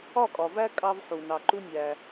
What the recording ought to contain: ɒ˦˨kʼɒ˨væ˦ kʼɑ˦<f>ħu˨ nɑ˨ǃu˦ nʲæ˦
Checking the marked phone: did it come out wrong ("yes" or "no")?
yes